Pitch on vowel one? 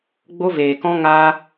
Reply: high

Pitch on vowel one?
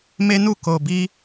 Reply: high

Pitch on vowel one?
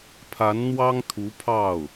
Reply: rising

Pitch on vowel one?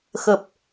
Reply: low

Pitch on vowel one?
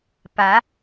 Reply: rising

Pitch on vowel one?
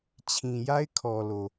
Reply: low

